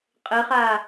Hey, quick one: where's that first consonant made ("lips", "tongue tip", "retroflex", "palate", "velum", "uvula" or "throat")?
uvula